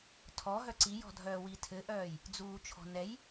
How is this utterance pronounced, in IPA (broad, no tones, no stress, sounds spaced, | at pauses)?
tʰ ɔ ɦ œ ǀ i j ɔ̤ dʱ œː w i tʰ ɘ ʔ œː j | d͡z uː t͡ʃʰ ɔ̤ n ɛ j